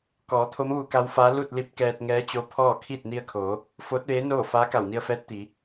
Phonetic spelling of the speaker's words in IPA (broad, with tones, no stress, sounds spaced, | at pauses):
k ɔː˩˧ t̪ʰ o˧˥ m ʋ u˧ k a˧˥ w f aː˧˥ l u˥˨ t̚ l i˧ p̚ k ɛː˧ t̚ ŋ ɛː˧˥ t͡ɕ o˧˥ pʰ ɔː˥˨ kʰ iː˥˨ t̚ n i˧ ə̯ kʰ oː˩˧ | f oː˧˥ t̚ ʋ eː˧˥ n oː˥˨ f aː˧˥ k a˧˩ w n i˧ ə̯ f ɛː˧˥ t̚ t̪ i˩˧